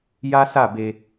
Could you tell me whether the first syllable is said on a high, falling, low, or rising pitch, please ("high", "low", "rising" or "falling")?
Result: high